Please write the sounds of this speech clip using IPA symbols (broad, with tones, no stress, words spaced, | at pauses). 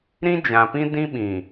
ɾĩ˦d͡ʒã˨pĩ˦ dĩ˦ɓĩ˨